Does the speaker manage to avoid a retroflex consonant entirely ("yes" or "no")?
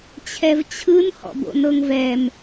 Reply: yes